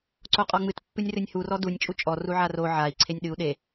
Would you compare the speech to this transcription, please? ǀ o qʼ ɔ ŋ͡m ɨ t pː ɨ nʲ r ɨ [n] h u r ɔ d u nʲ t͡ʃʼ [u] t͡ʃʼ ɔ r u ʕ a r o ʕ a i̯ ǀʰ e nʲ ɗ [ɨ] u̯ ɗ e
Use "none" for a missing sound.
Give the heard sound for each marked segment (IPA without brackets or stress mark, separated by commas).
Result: nʲ, u, ɨ